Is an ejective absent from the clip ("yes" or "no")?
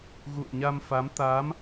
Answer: yes